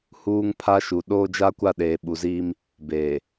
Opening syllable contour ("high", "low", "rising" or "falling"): high